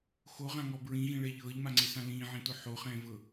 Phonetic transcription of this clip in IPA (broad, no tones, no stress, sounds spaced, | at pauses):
x o ʁ ã ŋ ɔ b ɹ ĩ ɣ ĩ ɭ ɛ ʎ ɤː ʎ m a ŋ͡ǀ e s ã l ĩː ʕ ẽ t o ħ o χ ɛ̃ː v ɤ